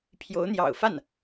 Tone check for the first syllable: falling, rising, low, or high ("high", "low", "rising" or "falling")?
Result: rising